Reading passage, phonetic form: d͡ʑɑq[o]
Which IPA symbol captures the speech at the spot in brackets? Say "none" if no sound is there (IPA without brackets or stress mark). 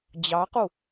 u